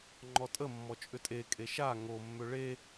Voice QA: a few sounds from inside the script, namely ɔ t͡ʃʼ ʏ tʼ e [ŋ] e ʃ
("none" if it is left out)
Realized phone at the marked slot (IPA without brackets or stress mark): kʼ